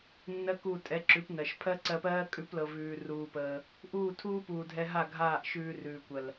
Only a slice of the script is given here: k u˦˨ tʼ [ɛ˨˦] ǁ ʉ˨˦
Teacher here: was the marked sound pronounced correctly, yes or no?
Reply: yes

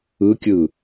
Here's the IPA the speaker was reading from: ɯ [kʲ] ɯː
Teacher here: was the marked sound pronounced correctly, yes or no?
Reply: yes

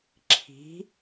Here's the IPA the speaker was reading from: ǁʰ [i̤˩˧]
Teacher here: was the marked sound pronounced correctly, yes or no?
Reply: yes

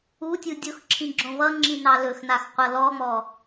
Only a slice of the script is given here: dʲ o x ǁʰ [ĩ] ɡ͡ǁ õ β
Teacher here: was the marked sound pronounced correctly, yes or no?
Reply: yes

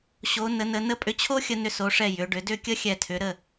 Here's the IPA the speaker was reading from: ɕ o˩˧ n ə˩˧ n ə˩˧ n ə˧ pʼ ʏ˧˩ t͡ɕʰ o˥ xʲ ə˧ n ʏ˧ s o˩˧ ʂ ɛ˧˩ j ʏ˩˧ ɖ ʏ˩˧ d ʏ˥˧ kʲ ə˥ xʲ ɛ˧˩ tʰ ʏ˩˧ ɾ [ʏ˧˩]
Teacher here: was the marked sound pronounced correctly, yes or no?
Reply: no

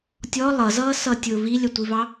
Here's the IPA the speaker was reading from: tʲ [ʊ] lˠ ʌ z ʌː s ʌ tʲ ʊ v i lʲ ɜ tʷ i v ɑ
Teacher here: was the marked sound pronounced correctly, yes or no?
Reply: no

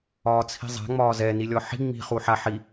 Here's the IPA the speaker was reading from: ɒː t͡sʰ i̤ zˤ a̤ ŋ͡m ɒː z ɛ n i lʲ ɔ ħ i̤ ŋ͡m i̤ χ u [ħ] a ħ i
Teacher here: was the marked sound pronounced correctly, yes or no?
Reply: yes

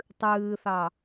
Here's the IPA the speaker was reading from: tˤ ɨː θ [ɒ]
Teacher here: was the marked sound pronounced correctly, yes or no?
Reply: no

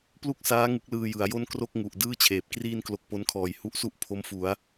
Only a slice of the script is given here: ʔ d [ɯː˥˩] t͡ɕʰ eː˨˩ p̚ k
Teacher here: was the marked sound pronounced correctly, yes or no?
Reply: yes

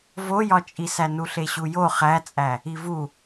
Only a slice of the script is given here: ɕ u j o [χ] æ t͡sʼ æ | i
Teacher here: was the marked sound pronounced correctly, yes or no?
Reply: yes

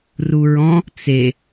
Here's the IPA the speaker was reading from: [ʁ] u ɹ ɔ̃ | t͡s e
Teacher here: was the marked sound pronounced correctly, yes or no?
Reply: no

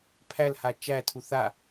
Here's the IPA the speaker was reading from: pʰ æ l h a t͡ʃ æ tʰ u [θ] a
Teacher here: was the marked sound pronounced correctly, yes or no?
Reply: yes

